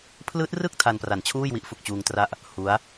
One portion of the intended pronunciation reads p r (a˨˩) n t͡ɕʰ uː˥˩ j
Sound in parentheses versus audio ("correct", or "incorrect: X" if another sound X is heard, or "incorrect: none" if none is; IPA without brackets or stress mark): correct